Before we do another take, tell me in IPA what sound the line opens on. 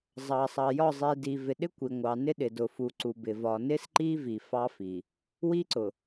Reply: zˤ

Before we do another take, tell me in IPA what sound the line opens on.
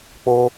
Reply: k͡p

